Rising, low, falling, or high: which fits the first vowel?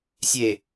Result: low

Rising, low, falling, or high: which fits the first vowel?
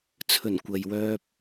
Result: low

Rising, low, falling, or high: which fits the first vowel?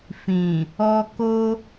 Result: low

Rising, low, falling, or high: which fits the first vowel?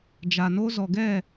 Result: low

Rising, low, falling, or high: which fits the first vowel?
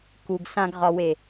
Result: low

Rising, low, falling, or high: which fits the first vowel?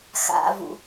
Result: low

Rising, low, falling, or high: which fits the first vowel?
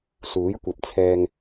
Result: rising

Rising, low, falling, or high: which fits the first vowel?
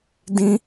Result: high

